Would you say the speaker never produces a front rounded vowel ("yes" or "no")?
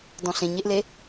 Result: yes